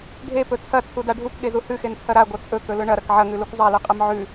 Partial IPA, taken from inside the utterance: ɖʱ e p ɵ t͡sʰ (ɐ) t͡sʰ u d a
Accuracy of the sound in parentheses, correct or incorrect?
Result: correct